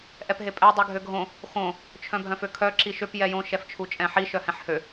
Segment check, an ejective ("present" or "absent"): present